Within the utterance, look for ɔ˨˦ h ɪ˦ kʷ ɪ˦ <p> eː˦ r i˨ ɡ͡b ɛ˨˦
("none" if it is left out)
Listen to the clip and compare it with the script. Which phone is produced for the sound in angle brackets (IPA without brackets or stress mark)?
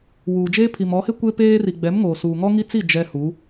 p